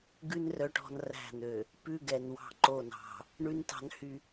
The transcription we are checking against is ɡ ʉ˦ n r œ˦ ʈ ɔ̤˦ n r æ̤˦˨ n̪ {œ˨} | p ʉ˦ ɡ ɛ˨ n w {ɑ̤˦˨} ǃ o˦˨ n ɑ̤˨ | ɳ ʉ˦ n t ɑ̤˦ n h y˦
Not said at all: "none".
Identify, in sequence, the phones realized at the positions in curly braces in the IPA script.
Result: ø˨, ɑ̤˦˨

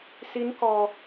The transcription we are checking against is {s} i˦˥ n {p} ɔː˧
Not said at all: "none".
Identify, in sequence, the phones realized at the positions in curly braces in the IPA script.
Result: s, k

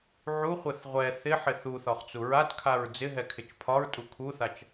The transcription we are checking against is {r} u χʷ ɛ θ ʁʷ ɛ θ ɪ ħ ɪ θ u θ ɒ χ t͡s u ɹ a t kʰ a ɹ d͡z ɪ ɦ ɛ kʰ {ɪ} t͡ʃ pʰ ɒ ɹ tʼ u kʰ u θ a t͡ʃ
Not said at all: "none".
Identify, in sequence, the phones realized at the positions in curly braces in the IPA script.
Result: ʕ, ɪ

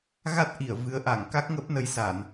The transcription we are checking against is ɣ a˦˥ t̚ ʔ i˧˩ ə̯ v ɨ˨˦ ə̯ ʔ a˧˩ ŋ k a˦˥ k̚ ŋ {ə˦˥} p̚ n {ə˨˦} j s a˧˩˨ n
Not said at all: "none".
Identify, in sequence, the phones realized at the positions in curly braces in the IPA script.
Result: ə˦˥, ə˨˦

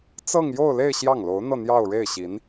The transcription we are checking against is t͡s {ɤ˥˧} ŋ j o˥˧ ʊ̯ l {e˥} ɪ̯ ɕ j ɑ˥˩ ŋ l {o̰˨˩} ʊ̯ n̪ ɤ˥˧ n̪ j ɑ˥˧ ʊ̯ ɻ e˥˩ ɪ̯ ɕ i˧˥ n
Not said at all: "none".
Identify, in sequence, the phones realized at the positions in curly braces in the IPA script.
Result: ɤ˥˧, e˥˧, o˧˥

